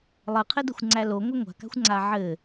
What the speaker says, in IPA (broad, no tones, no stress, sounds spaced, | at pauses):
lˠ ɘ qʰ ɘ d ɘ xʷ ŋ͡ǀ æ l o ŋʷ a ŋʷ a̤ k a̤ xʷ ŋ͡ǀ a ʕ ɘ